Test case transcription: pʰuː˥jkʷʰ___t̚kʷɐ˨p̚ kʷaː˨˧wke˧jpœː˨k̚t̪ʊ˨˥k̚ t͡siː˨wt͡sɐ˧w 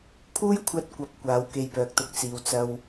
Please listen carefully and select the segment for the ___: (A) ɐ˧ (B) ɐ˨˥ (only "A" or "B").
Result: A